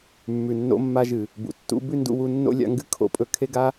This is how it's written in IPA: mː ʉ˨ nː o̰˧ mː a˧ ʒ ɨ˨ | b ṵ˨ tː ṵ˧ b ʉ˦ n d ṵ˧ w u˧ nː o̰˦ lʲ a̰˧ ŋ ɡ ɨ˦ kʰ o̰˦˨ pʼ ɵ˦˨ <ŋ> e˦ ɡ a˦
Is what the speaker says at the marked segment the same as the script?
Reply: no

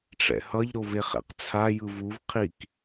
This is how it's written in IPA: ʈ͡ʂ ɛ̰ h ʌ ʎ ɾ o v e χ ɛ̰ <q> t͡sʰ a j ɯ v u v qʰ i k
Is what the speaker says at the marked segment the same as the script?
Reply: yes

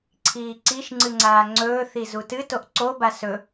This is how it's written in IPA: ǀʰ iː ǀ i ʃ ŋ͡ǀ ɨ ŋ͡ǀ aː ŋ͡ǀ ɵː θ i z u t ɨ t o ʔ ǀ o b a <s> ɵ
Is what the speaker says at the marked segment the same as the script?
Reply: yes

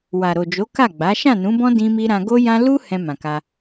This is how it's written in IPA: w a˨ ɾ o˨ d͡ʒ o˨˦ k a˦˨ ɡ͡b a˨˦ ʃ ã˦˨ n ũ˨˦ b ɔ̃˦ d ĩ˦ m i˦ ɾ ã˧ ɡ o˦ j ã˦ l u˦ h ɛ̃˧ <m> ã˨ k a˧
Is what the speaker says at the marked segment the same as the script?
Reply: yes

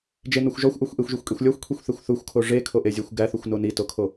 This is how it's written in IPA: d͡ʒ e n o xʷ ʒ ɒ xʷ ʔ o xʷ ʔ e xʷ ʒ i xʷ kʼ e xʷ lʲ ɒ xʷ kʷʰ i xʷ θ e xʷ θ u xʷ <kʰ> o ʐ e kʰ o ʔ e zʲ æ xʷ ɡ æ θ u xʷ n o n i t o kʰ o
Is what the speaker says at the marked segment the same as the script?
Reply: yes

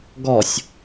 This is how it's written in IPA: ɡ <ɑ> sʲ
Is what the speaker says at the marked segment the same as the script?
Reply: no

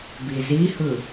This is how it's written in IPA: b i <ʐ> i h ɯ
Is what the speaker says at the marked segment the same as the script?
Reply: no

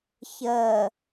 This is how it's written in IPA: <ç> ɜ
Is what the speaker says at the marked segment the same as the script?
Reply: yes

